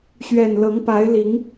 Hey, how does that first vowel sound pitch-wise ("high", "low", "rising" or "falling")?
low